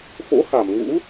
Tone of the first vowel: rising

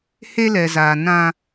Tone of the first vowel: high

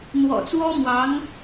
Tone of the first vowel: low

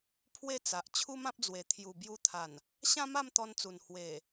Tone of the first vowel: falling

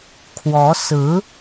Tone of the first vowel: rising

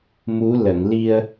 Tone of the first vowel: rising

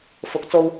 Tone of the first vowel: rising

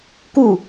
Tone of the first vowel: falling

